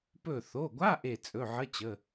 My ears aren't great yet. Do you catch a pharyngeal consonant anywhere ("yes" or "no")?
yes